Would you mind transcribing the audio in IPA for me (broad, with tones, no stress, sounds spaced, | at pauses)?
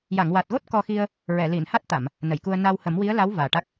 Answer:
j a˨˩˨ ŋ w a˨˩ t̚ ɣ o˦˥ t̚ k ɔ˧ x i˧ ə̯ | ɹ ɛ˨˩˨ l i˨˩˨ n h a˦˥ t̚ t̪ a˨˩˨ m | n ə˨˩˨ j k u˧ ə̯ n a˧ w h ə˨˩˦ m w i˧˥ ə̯ l a˧˥ w v aː˨˩ ʈ a˦˥ k̚